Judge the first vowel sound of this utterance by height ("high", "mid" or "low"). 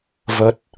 mid